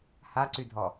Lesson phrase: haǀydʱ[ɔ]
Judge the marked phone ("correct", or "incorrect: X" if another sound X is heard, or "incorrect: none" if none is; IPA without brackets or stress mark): correct